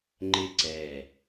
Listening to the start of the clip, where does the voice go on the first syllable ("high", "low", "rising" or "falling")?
falling